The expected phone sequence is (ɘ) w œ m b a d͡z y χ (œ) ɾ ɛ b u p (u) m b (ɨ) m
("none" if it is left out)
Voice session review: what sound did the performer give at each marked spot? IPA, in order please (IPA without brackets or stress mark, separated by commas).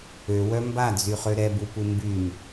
ø, ø, u, y